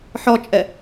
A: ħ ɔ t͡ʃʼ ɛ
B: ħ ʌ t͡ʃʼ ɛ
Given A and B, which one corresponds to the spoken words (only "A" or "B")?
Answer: A